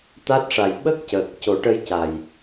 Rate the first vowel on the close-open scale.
open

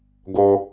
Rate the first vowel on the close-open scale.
mid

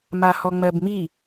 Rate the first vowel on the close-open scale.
open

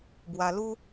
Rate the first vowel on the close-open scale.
open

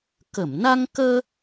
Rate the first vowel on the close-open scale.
mid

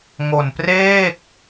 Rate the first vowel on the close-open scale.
mid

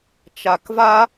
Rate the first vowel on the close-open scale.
open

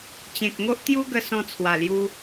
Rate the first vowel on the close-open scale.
mid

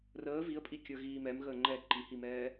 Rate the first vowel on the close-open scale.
mid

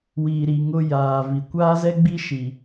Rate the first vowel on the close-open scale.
close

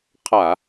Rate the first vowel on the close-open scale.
open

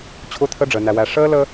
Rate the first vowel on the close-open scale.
close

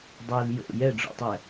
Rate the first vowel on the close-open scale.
mid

